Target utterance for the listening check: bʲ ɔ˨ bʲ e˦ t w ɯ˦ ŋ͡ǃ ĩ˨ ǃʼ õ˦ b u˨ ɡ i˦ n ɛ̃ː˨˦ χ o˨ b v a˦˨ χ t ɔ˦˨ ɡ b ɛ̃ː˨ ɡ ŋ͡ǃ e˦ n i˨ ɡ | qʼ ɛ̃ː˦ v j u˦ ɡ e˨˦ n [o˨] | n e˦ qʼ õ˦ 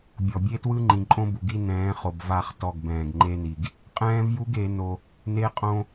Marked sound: incorrect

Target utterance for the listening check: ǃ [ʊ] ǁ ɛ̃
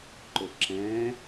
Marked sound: correct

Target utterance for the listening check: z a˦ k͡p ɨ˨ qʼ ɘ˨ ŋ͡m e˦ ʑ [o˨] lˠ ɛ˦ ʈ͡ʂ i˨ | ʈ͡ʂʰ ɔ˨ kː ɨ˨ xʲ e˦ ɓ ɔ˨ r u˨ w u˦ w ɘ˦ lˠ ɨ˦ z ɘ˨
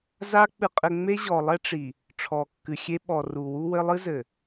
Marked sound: incorrect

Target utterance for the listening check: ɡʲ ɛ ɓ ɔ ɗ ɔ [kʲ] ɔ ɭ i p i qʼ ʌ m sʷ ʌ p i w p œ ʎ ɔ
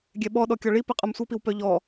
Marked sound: correct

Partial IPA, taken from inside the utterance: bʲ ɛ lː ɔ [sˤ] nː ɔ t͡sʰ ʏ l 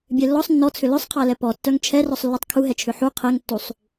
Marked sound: correct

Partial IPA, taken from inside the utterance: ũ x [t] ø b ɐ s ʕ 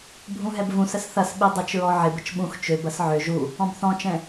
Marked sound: incorrect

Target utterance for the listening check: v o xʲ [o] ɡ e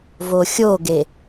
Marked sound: correct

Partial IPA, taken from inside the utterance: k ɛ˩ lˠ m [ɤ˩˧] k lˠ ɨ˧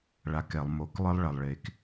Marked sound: incorrect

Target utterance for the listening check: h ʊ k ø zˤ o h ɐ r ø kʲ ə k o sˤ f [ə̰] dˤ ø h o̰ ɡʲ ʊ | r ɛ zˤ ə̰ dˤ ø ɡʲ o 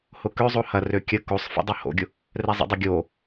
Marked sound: correct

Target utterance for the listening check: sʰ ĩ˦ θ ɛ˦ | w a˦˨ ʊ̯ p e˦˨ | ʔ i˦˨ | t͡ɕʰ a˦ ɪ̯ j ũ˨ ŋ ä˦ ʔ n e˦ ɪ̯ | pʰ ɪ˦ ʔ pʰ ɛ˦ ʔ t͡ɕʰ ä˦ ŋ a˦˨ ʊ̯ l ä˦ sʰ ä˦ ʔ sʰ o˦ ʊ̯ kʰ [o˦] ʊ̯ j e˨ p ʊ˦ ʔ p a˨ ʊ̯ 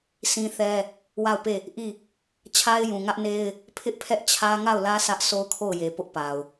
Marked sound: incorrect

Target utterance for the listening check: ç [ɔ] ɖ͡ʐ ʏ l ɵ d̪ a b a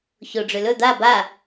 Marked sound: incorrect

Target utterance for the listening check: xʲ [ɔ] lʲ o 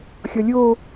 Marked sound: correct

